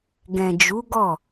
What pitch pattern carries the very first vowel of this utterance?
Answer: low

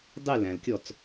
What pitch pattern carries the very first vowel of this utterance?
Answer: falling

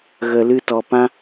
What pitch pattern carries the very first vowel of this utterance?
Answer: low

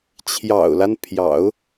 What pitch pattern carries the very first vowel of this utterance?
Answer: low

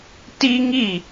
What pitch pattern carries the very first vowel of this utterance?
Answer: high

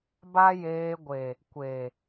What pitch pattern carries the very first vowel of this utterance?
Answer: high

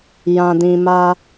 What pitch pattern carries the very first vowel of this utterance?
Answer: low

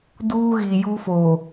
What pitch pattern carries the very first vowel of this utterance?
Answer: high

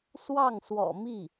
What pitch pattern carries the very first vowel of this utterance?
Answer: falling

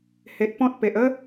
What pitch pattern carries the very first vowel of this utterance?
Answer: low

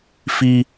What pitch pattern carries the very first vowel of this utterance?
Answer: high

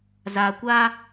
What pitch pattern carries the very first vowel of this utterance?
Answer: low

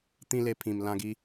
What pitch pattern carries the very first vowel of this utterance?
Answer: high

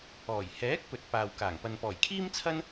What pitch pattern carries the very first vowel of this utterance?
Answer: low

